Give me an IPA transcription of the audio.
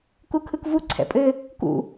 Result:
k u kʰ ɯ k v u ǀʰ ɛ̰ pʼ ɘ | k ṵ

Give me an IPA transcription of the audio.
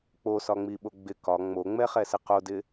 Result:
k͡p o s ɒ ŋ͡m i ɓ o ɡ͡b ɪ k ɒ ŋ͡m o ŋ͡m ɛ χ ɛ s ɪ q o d ɪ

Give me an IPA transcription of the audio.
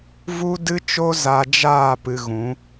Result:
v u˦ d ɨ˦ t͡ʃ o˦ z a˧ d͡ʒ aː˦˨ p ɨ˧ ɣ ũ˨˦

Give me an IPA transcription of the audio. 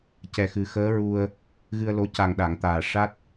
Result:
c ɛ˨˩ x ɨ˨˩˦ x əː˧˥ ɹ u˧ ə̯ | ɣ ɨ˧ ə̯ l o˧˥ c a˨˩ ŋ ɗ a˨˩˨ ŋ t̪ aː˨˩ ʂ a˦˥ t̚

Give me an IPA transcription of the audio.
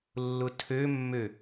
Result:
lː ʊ tʰ ø mː ø

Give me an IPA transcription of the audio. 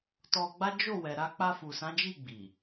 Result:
t ɔ˧ ɡ͡b a˦ d͡ʒ o˦˨ w ɛ˨ ɾ a˧ k͡p a˧ f u˨ s ã˨˦ d͡ʒ i˦˨ ɡ͡b i˨

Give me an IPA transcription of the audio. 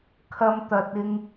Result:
kʰ ɐ˨ m t̪ ɐ˨ t̚ ɪ˧ ŋ

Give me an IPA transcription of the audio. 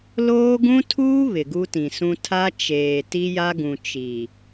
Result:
l oː˦ ɡ ũ˦ tʰ uː˦ β ɪ˨ ɡ u˦ t ĩ˨ s ũ˦ tʰ a˦ t͡ʃ eː˨ t i˦ j a˦ ɡ ũ˨ t͡ʃ i˨

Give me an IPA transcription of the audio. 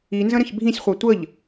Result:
i n z ə̃ ɾ ə̃ ç bʱ ĩ sʲ χʷ a tʷ ə ʎ

